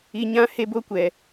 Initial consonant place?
palatal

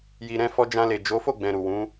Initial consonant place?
palatal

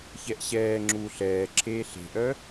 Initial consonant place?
palatal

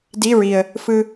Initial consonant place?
alveolar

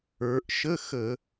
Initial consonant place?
glottal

